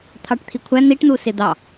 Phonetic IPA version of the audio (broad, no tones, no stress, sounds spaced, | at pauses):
t̪ʰ ɑ ʈ t̪ʰ i kʷʰ æ n̪ i ʈ n̪ u s ɪ d̪ ɑ